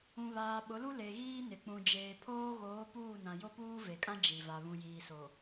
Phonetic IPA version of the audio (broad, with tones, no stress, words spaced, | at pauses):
ũ˨βaː˨ɓʊ˨˦lu˦ le˨ɣiː˦ nɪ˨k͡pũ˨ d͡ʒeː˨pʰoː˦ɣoː˨˦ puː˦˨nã˨ jo˦puː˦ ve˨kʼã˦ d͡ʒi˨ va˨βũ˨jiː˨so˨